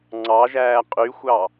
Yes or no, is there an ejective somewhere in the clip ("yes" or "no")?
yes